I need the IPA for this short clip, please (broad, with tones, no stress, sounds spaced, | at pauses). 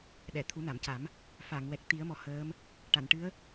ɗ ɛ˨˩˨ t̪ʰ u˨˩˦ n a˨˩˨ m c a˨˩˦ m | f a˨˩˨ ŋ w ɛ˨˩ k̚ t̪ i˨˩˦ ə̯ m ɔ˨˩ h əː˧˥ m | ʈ a˨˩˨ n ʈ ɨ˧˥ ə̯